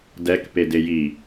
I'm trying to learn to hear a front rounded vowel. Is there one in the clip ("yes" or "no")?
no